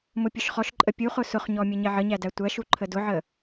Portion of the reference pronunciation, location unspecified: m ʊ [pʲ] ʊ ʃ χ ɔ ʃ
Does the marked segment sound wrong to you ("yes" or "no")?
no